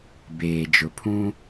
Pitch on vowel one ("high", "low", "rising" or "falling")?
low